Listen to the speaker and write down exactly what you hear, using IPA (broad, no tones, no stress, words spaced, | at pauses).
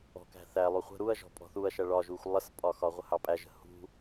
ɔ̤kæ̤θæ lˠuχʷə̤ ɾuɐ̯ ʒɔ̤pʼɔ̤θuɐ̯ ʃæɭɒʒuxʷ lˠəspʼɒxɒ ʁʷəhɑpʼæʒə̤ hṳ